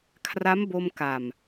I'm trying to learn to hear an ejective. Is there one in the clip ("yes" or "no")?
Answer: no